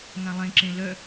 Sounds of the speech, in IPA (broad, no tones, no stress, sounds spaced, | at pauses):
ŋ ã lˠ ẽ ǁ ẽ l œ